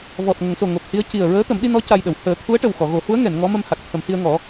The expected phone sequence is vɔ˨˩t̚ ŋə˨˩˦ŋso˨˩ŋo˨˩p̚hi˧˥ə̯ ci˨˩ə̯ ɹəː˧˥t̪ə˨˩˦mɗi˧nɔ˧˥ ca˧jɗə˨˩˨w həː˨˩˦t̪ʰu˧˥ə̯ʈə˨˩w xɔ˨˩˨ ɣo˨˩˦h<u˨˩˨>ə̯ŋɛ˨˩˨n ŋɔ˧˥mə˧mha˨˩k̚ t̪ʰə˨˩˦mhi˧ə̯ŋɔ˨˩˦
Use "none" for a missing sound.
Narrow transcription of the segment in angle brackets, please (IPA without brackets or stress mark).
u˧˥